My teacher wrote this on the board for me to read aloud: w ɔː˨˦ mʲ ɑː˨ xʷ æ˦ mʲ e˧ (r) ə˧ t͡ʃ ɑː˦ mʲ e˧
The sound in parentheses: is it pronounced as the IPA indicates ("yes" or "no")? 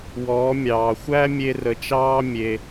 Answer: yes